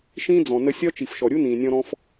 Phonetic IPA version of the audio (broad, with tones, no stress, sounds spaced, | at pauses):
ʃ ĩː˦ d͡z ɔ̃˨ n ə˧ sʲ ɒ˦ t͡ʃ i˨ f ʃ ɔ˨ ɾʲ u˦ n ĩː˨ nʲ ɔ̃˧ ɾ ɔ̃˧ f